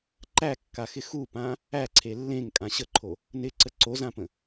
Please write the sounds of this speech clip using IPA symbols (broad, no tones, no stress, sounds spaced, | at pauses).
ǃ æ kː a x ɪ x u p ã | æ ǀʰ e lː ẽ ŋ kʼ ã ɕ ə ǃʰ o | n ɪ ǀ ə ǀ o z ã p ə̃